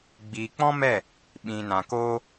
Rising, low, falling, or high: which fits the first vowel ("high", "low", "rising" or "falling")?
low